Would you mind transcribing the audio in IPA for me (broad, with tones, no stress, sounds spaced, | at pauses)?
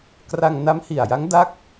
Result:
k r a˧ ŋ n a˦˥ m h i˨˩ a̯ j a˦˥ ŋ d a˥˩ k̚